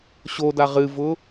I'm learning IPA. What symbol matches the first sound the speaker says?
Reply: ɕ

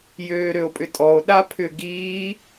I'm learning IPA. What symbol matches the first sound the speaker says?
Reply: j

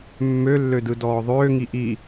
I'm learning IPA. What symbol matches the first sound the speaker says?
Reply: mː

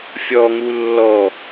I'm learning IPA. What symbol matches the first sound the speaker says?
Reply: fʲ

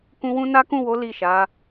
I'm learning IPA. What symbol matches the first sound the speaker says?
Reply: k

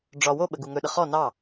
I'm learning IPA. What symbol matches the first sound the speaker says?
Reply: ɖ͡ʐ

